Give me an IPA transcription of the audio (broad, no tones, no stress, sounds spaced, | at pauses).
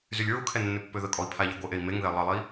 z y lʲ ɹ u kʰ ɛ nː ø pː ø ð ə kʼ ɔ i̯ pʰ a ʎ ɛ ɡʷ ə ʔ e i̯ m e ŋ ð ɛ lˠ ə lˠ i